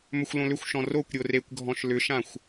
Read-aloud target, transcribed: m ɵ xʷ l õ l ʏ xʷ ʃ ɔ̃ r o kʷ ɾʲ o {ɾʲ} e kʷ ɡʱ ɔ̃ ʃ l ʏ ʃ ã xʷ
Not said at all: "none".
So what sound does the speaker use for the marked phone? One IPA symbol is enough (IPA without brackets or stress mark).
r